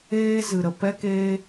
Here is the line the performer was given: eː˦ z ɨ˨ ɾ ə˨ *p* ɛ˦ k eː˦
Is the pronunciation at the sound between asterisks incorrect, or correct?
correct